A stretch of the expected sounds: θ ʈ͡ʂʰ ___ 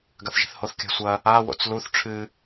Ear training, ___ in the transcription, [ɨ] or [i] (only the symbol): ɨ